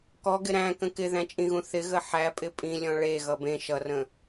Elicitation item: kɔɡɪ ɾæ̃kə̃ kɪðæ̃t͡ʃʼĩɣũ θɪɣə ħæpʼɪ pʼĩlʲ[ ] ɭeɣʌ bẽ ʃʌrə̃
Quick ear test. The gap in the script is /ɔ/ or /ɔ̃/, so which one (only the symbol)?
ɔ̃